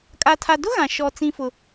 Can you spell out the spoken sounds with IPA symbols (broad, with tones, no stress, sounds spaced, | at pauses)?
kʼ a˦ tʰ a˦ d ʊ˦ ɣ ã˨ ʃ ɔ˦ t͡s ĩ˦ f ʊ˦